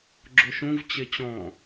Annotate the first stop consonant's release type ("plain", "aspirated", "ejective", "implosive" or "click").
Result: click